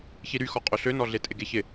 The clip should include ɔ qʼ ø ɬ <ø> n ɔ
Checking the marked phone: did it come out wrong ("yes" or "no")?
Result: no